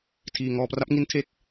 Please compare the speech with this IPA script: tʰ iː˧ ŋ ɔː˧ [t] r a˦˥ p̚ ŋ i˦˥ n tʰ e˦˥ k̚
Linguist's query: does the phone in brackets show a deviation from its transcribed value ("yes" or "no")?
yes